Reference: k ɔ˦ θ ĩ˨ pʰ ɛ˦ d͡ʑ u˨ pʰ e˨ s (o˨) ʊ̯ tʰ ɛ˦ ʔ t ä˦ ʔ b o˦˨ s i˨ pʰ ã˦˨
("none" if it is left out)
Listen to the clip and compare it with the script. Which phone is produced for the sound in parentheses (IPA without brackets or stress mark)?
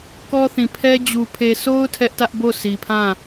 o˦